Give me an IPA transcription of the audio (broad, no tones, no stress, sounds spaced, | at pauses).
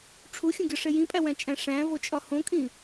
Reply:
ʈ͡ʂʰ u xʲ õ ɡʲ ɒ ʂ e j ĩ pʼ æ w æ̃ t͡ʃʼ æ̃ ʂ æ̃ v o t͡ʃʼ ɒ h õ kʼ ĩ